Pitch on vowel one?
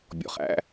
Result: low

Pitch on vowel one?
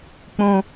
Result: high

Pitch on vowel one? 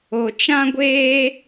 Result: low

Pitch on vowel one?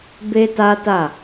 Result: high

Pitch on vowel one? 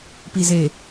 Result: low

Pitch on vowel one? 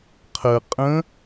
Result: low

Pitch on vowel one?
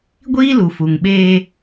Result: high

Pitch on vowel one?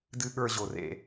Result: low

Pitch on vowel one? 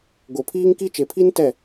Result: low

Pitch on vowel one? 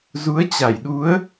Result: rising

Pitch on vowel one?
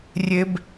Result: high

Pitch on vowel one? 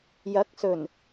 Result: rising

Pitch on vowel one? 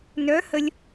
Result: rising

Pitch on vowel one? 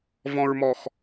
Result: low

